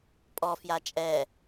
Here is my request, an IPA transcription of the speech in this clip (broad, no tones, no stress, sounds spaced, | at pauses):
pʼ ɔ f j a t͡ʃʼ ɛ